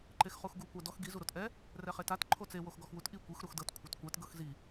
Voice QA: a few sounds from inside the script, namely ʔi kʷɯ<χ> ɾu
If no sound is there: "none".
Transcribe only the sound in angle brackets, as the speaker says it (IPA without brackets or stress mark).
x